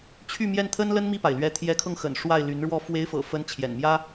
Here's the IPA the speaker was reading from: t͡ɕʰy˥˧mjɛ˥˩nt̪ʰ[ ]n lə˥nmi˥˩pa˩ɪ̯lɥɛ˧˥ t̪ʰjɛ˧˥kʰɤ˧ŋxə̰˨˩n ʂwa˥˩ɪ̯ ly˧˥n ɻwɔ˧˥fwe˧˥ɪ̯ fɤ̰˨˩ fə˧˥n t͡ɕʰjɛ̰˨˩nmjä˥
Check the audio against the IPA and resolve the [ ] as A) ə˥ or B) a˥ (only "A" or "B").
A